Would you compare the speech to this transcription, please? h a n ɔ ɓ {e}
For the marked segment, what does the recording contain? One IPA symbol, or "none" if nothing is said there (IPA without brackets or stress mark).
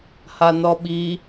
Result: i